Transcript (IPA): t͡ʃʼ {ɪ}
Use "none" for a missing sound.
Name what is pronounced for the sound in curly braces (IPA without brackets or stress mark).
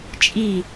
i